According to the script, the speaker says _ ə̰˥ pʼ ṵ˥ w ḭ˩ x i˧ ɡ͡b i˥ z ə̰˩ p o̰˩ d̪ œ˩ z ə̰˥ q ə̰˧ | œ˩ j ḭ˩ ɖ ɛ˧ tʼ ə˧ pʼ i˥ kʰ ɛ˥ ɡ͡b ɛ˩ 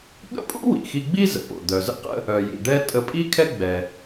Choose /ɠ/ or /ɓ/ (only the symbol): ɠ